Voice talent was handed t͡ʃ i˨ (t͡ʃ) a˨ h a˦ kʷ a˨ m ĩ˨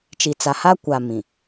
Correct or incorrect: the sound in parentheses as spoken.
incorrect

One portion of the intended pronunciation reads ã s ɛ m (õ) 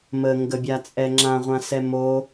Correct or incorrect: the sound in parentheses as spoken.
incorrect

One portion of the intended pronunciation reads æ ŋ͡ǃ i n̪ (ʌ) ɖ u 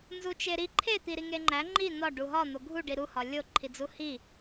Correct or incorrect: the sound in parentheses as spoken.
incorrect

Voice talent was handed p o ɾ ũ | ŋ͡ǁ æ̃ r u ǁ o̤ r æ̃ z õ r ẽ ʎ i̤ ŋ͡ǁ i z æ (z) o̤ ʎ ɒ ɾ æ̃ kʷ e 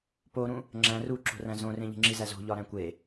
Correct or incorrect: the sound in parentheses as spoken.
correct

